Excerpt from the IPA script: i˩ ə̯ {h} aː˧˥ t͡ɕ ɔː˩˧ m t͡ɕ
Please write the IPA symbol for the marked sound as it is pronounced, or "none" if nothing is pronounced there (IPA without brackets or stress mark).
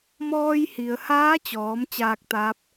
h